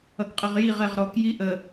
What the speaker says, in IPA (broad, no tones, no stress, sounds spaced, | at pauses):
ʌ k qʼ ə ʁ j i ʁ ɛ ʁ ɾ ɔ k j i ʔ ə